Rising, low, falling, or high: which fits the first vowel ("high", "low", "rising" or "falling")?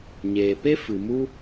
low